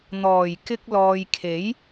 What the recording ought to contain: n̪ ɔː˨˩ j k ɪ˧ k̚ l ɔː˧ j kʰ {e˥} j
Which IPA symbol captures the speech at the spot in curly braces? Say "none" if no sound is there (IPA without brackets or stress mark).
e˨˥